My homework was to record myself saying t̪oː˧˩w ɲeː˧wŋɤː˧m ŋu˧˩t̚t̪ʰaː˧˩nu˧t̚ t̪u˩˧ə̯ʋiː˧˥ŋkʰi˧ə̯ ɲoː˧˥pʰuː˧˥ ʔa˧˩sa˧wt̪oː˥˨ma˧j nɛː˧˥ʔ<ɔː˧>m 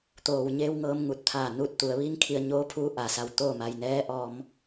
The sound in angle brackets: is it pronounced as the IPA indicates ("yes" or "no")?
yes